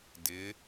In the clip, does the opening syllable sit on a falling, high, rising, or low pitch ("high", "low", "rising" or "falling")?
rising